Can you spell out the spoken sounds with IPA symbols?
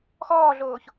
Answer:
x ɔː ɮ oː ç

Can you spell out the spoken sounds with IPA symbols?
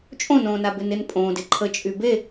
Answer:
t͡ʃʼ õ n õː n a b ɪ n ɪ n pʼ õ d ɪ ǃʰ ə t͡ʃʼ y b e

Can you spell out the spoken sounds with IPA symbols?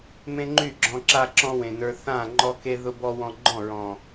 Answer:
m ẽ˦ ŋ͡ǃ y˦˨ ɡ͡ǁ ɔ̃˧ ǁ a˧ ǁ ɔ̃˧ w ẽ˨ n ə˞˧ θ ã˦˨ ŋ͡ǃ ɔ˧ k e˧ ð ʊ˧ b ɔ˧ w ɔ̃˧ ɡ͡ǃ ɔ̃˦˨ ɹ ɔ̃˨

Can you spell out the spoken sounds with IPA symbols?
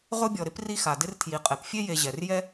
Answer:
ʁ ʊ˥ bʲ ɔ˨ ɾ ɪ˥ p r i˦ x a˩ d ɪ˦ r tʰ j i˩ qʼ ɛ˩ p fʲ e˦ j e˨ ʑ ɛ˩ r j ɛ˦

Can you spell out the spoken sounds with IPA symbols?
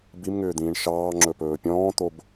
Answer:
b i m ŋ ʏː d̪ ĩː ɳ ʃ ɑː ŋ͡ǁ ɵ p ɵː pʲ ɔ̃ː t̪ o b

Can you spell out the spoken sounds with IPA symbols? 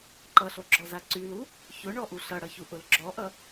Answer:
ǃ ʌ ɬ o ɡ͡ǁ ɔ z a ǀ y l u | ç ʊ ɳ ɔ ʔ u ɬ ʌ ɽ ʌ ç u ʔ ʊ l ɡ͡ǁ ɔ ʔ ʌ

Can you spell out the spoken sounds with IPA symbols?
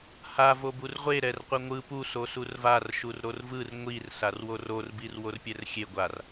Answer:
h a v o b u r ʁʷ e ɾ ɛ r qʷ ɛ ŋʷ ɯ p u s o s u r v a r ʃ u r ɾ o r v ɯ r ŋʷ i r s a r w o r o r b i r w o r pʲ ɛ r xʲ e ɡʷ a r

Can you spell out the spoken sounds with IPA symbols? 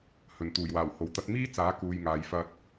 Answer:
h ɵ˨˩ n t̪ uː˨˩ j w aː˨˩ w h o˨˩ w t̪ ɐ˨˥ t̚ m iː˥ t͡s aː˨˥ k uː˨ j ŋ aː˨ j f ɐ˧ t̚

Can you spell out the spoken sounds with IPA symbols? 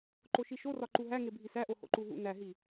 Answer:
ǃ o ʃ i ʃ o r ɒ ǃ u ɦ æ ŋ e bʱ i s æ ʔ o h o̰ ǃ u ɦ ṵ n æ ɦ i

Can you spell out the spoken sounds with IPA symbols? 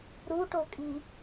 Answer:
ɾ u ʈ o kʼ i

